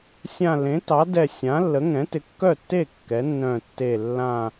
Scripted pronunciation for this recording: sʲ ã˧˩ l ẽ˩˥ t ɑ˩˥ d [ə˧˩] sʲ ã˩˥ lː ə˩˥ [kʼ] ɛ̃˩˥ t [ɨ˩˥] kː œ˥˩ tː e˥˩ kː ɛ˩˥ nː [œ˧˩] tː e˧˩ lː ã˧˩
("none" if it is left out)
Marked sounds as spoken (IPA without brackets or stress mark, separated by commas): ɛ˧˩, ŋ, ɪ˩˥, œ̃˧˩